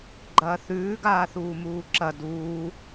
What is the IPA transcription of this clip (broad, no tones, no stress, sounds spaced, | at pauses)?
ɡ͡ǃ ɐː θ ʉː ɡ aː θ uː m uː ǁ ɐ d uː